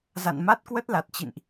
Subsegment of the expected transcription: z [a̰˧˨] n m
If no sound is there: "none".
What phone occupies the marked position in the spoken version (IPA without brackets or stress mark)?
a̰˧˨